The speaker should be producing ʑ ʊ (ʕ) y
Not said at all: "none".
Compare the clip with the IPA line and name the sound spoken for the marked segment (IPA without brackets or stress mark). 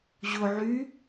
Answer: ʕ